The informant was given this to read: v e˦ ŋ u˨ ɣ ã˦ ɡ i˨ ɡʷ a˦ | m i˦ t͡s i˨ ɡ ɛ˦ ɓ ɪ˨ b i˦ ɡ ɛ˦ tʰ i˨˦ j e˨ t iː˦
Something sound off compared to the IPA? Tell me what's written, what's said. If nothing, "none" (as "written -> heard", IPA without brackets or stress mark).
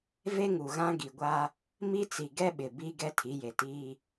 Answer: none